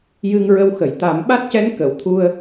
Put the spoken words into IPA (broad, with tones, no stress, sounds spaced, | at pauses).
j ɨ˧ ŋ ɹ ə˧ w x ə˨˩˨ j t̪ a˨˩˦ m ɓ a˦˥ t̚ c ɛ˧˥ n k ə˨˩˨ w t̪ʰ u˧ ə̯